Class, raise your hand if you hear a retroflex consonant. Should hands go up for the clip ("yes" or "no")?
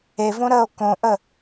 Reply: no